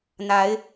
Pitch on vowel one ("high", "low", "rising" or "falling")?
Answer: rising